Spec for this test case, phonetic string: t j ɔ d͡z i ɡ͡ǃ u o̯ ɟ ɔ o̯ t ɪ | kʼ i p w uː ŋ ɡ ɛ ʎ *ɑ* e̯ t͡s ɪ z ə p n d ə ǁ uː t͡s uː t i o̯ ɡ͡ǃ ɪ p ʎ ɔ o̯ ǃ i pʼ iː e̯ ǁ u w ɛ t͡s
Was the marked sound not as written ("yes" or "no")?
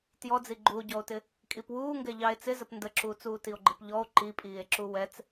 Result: no